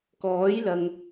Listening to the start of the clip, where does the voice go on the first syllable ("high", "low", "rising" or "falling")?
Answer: rising